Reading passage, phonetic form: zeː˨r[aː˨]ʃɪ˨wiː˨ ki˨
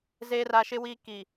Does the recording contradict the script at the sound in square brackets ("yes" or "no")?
yes